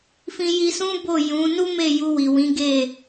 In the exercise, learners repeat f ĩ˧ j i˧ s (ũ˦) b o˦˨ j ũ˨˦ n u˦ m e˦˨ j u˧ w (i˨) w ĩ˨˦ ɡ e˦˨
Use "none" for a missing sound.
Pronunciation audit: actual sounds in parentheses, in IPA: ũ˦, i˨

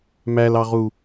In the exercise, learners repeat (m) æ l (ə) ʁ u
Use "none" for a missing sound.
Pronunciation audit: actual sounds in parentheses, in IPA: m, ɑ

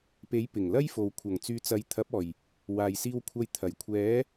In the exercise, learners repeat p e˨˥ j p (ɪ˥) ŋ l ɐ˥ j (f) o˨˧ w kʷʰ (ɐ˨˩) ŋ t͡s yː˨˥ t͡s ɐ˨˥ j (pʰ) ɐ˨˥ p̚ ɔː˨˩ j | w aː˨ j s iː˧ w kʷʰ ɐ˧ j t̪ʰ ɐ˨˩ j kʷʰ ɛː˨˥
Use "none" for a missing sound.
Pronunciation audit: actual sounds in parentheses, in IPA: ɪ˨˩, f, ɐ˨˩, t̪ʰ

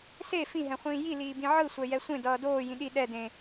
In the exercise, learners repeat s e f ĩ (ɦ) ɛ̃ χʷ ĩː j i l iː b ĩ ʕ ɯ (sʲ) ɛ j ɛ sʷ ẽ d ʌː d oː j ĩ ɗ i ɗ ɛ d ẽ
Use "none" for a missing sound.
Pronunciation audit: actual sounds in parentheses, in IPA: ɦ, sʷ

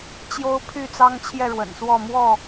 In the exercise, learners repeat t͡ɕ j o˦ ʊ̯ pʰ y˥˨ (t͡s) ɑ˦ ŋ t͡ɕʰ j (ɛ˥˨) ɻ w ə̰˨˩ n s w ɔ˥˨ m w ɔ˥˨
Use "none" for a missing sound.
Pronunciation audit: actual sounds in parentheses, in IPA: t͡s, ɛ˥˨

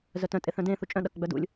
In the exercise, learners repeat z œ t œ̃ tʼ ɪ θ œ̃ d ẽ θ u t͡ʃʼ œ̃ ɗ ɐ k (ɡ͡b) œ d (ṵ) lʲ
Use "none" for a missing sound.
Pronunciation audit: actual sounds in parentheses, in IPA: ɡ͡b, ṵ

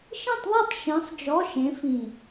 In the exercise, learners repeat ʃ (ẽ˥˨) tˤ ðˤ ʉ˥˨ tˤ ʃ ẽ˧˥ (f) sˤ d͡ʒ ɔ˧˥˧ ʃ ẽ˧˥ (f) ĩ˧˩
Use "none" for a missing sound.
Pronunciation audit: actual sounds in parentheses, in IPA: ĩ˥˨, none, f

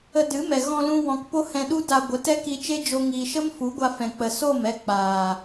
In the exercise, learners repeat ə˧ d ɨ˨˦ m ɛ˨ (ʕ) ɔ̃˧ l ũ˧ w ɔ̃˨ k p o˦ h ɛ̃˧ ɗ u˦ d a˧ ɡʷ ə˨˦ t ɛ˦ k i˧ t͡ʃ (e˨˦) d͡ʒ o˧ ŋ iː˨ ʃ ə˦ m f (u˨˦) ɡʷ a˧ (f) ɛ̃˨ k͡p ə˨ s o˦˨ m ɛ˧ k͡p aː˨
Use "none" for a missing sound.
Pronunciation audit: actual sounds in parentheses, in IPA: ɣ, e˦, u˨˦, f

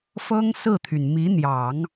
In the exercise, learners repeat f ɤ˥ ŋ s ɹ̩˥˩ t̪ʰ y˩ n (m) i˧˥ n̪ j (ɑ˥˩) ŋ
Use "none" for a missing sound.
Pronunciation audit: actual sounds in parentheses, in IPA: m, ɑ˨˩˦

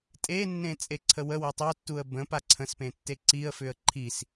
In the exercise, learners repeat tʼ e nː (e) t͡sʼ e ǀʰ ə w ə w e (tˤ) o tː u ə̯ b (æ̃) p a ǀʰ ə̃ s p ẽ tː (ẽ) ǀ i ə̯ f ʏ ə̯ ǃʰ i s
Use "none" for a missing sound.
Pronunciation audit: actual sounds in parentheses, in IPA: ẽ, tˤ, ə̃, e

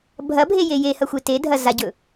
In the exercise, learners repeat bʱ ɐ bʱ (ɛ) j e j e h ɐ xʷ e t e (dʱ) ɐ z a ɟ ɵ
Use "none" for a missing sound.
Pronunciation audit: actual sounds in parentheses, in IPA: e, dʱ

